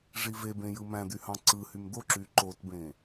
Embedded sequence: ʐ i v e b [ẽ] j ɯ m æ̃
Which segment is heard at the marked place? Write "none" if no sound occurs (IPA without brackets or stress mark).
ẽ